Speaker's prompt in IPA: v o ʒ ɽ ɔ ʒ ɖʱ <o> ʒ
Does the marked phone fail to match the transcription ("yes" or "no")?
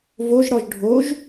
no